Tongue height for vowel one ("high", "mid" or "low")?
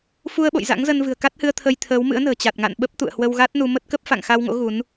high